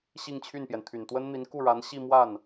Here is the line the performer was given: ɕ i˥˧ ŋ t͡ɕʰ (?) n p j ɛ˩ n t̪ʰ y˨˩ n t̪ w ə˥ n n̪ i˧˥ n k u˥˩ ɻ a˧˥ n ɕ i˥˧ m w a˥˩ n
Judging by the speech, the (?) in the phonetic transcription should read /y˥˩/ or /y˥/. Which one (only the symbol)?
y˥˩